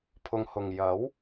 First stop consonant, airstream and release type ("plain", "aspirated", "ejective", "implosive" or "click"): aspirated